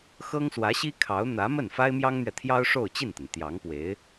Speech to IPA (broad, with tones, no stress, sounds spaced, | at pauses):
x ɤ˥ ŋ s w ä˧˥ ɕ i˥ kʰ ɑ˧˥ ʊ̯ n̪ ä˧˥ m ə˥˩ n f a˥ ɪ̯ m j ɑ˥ ŋ n̪ ɥ ɛ˨ t̪ʰ j ɑ˥ ʊ̯ ʂ o˥˧ ʊ̯ t͡ɕ i˥˩ n t̪ ə˩ n t̪ j ɑ˧˥ ŋ p w e˧˥ ɪ̯